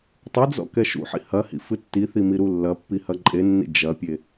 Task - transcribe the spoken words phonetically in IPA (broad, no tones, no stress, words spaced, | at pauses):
tˤud͡zɔ̰ kɛʃṵħḭ hɐhḭ fɨtːiθi miɾulːɐpːi hɐǃʼenːḭ d͡ʒɐpʲe